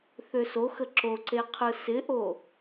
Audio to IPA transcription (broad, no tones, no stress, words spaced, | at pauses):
θøsoxə ǁoǀe qʰɯsɪʔo